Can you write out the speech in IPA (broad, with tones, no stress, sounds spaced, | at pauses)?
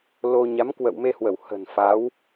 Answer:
l o˧ ɲ a˨˦ m k w ə̰˧˨ w m e˧ h w ə˧˩ w h ə̤˨˩ n f a˨˦ w